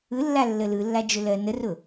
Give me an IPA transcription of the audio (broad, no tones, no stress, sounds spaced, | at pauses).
ɯ lː a lː ə l ɯ lː a d͡ʒ ʊ l ɜ n ə r ʊ